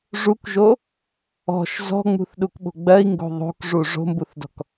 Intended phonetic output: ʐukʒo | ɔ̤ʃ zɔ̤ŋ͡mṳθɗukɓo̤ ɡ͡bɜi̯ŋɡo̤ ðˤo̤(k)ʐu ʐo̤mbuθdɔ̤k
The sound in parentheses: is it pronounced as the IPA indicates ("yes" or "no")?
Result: yes